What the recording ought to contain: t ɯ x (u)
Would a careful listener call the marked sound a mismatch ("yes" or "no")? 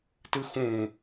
yes